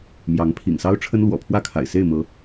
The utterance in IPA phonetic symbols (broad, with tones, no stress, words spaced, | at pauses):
mjɑ˨˦ŋpʰḭ˨˩ŋsɑ˦ʊ̯ ʈ͡ʂʰə˦nlwɔ̰˨˩ pʰwä˥˨kʰa̰˨˩ɪ̯ se˥˨ɪ̯mɤ˨˦